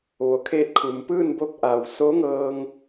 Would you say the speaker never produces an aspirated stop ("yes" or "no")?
no